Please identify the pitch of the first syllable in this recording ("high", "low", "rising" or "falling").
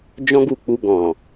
high